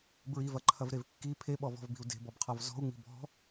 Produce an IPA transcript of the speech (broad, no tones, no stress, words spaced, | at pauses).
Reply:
bɹivɐǃʰɐvɾev kːi pʰeɓɔvɔ̤vbi̤u̯ de̤bɔbqʰɔv zɔ̤u̯ŋ͡mi̤ bɔ̤